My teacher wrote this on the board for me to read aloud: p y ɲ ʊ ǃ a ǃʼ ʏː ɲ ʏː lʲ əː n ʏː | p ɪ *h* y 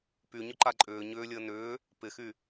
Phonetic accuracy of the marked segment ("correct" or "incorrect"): incorrect